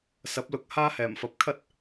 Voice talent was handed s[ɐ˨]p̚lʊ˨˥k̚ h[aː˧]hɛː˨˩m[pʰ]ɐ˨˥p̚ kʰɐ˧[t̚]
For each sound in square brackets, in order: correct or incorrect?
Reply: incorrect: ɐ˨˥, incorrect: aː˥, incorrect: f, correct

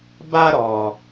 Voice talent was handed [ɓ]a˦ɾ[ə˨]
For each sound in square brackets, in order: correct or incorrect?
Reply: incorrect: b, incorrect: ɔ˨

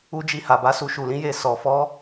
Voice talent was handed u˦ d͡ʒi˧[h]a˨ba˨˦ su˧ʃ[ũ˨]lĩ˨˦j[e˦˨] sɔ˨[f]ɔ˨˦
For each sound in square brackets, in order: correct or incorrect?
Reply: correct, incorrect: u˨, correct, correct

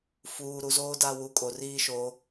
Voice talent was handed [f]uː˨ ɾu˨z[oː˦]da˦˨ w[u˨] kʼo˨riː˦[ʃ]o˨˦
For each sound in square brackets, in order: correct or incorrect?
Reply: correct, correct, correct, correct

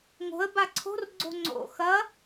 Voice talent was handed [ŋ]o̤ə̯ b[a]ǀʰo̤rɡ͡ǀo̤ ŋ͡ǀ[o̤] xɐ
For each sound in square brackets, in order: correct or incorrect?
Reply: correct, correct, incorrect: o̰

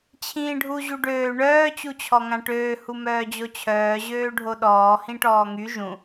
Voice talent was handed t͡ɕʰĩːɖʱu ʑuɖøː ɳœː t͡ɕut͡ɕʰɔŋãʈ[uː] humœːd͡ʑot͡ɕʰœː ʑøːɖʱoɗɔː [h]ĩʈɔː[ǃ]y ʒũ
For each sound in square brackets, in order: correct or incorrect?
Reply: incorrect: øː, correct, incorrect: ŋ

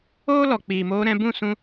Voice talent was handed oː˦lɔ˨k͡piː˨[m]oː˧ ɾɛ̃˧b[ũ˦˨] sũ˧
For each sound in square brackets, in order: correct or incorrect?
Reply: correct, correct

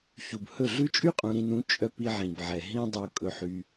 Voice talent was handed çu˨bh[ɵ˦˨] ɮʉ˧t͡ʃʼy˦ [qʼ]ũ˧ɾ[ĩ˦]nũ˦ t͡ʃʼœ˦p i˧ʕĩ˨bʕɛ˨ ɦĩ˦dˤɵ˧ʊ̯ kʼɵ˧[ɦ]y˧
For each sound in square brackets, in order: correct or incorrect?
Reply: correct, correct, incorrect: ĩ˧, incorrect: ħ

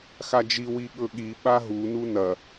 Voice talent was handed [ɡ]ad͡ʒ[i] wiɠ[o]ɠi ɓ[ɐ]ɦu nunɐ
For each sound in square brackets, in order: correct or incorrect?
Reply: incorrect: x, correct, incorrect: ɵ, incorrect: a

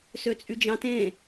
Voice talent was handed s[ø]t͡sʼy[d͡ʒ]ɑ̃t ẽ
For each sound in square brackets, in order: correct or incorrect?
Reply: correct, correct

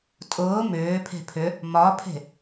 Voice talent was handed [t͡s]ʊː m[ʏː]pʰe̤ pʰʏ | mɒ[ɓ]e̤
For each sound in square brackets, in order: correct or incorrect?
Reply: incorrect: tʼ, correct, incorrect: pʰ

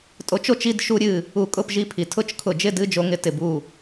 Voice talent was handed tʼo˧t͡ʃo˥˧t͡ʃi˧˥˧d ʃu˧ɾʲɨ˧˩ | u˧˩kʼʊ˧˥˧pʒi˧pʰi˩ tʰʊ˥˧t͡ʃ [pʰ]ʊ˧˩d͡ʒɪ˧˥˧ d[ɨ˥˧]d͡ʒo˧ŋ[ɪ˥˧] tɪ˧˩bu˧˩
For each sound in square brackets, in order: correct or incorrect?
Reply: incorrect: kʰ, incorrect: ɨ˧˥˧, incorrect: ɪ˧

